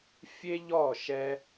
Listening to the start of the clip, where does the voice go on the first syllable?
high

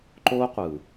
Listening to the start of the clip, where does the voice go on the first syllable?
high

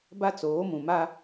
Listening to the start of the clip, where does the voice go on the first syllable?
high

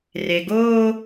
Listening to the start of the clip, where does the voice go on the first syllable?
low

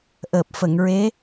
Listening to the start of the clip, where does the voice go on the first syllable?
low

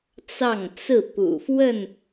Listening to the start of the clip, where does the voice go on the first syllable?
falling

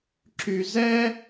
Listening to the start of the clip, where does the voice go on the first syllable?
low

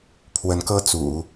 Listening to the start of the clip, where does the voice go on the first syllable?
rising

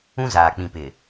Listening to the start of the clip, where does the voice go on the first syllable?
high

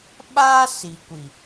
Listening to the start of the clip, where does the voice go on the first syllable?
high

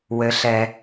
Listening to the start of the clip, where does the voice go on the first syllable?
low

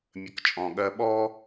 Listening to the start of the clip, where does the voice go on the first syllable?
low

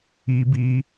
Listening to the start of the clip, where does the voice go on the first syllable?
high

